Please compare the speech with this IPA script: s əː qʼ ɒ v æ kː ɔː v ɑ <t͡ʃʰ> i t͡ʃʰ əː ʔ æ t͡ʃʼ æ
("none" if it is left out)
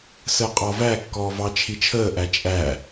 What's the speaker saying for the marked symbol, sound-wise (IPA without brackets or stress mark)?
t͡ʃʰ